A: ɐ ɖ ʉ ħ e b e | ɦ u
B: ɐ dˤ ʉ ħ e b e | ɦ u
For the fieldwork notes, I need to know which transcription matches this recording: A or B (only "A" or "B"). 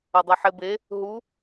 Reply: B